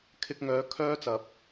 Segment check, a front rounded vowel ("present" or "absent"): present